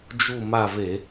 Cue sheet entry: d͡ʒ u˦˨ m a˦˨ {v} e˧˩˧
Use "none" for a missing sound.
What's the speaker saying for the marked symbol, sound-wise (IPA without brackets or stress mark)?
v